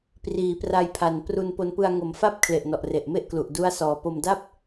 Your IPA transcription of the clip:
p r iː˩˦ p r a˧ j pʰ a˨˩ n p r u˧ n p o˧ n p ɯ˧ a̯ ŋ o˨˩ m f a˥˩ p̚ kʰ l e˨˩ ʔ n ɔ˨˩ ʔ r e˨˩ ʔ m e˥˩ ʔ k l u˨˩ ʔ d u˦˥ a̯ s ɔː˨˩ p o˧ m d a˥˩ p̚

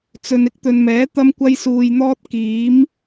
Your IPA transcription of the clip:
t͡s ɵ˨ n ɪ˥ k̚ t̪ ɵ˨ n m ɛː˨˥ t̪ ɐ˥ m kʷ ɐ˥ j s uː˧ j n̪ ɔː˥ t̚ k iː˨˥ m

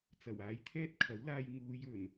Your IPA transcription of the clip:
t͡s ɐ˨˩ w aː˨˥ j t̪ʰ ɛː˥ t̚ kʰ ɐ˨˥ w l aː˧ j ŋ uː˨˧ j ɵ˨˩ n

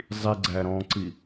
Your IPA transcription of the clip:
zˤ i ɡ͡ǀ æ ɾ ɔ̃ː ǀ i

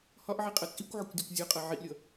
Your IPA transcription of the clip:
h ɒ ʔ ʕ i qʼ ʌ t͡sʼ i kʷ ʕ ə kʷ dʲ ɒ kʷ zʲ ʊ qʼ ʌ ʕ i ʔ lʲ ʌ

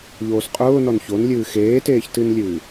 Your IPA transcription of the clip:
ʎ oː s qʼ ʊː n ɔ n ç o n lʲ ɨː x eː t eː ç t ɨ n lʲ ɨː

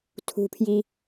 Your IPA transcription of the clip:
tʰ ṳ pʰ j i

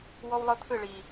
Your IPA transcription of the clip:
w ɔ˦ w lˠ ɤ˦ t̪ʰ ɯ˦˨ ɭ i˨

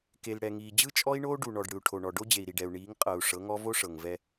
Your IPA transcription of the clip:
k e˨ l ɽ ɛ˨ ŋ iː˨ d͡ʑ ɯ˦ t͡ʃʼ ɔ˦ i̯ ɳ oː˦ ɖ u˨ ɳ ɔ˨ ɖ ɽ ɯ˨ u̯ ʈʰ o˨ ɳ ɔ˨ ɖ o˦ d͡ʑ e˨ i̯ ɾ i˨ ɖ ɛ˨ u̯ ɳ iː˨˦ ŋ qʼ ɤ˨ u̯ ʂ ɤ˨˦ ŋ ɔ˦ v o˦ ʂ ɤ˨ ŋ v ɛ˦

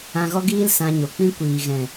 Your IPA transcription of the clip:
ã˧ ɣ ɔ˦ ɡ iː˦ l s ã˧ ɲ o˨ k͡p ĩ˦ kʷ iː˨ ɣ ɛ̃˨

